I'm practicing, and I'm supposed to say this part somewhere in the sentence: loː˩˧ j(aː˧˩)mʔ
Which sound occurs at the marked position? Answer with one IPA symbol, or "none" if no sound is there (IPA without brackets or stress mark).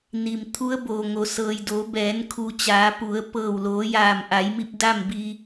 aː˧˩